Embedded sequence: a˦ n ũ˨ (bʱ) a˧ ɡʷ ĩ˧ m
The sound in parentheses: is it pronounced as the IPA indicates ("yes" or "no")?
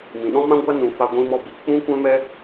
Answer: no